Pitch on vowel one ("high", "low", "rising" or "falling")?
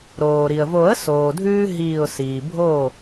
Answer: low